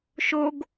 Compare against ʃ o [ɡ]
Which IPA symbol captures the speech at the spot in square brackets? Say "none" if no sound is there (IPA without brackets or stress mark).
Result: ɡ